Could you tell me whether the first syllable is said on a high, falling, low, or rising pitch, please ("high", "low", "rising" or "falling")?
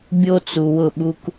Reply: high